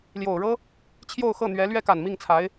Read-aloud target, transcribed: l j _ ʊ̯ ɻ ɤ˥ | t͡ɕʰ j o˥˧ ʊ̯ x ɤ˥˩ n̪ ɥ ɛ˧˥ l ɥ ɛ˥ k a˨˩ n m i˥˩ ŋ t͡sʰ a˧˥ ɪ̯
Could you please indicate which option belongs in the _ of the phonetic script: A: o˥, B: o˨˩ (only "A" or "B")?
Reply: B